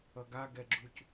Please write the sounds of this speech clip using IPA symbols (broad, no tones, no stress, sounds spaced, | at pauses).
ʌ ɡ a ɡ ɛ ɡ͡ǁ u c